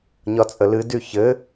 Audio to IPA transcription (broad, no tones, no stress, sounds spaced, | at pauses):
ɲ ɒ t͡sʼ ə l ɨ d y ç ɘ